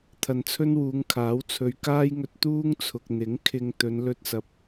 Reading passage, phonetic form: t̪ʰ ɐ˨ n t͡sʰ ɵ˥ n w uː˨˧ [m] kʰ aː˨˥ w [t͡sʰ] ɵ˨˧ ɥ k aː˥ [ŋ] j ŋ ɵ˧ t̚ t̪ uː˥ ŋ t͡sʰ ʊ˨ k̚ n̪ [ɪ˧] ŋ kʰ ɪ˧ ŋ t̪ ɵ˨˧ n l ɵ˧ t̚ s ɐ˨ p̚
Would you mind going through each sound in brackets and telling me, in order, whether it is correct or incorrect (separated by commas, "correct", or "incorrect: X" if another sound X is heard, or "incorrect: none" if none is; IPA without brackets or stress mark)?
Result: incorrect: ŋ, correct, incorrect: none, incorrect: ɪ˨˥